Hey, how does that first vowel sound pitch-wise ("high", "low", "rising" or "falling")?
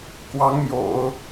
rising